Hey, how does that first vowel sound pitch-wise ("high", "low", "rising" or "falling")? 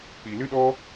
low